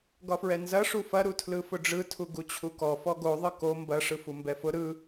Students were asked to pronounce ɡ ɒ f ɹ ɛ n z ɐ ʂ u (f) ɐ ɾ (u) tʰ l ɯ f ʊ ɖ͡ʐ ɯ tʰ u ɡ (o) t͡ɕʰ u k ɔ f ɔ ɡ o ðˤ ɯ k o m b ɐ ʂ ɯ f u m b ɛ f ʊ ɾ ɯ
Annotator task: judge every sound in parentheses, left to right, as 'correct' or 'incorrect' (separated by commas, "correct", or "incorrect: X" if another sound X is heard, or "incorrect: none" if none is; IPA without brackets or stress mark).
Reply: correct, correct, incorrect: u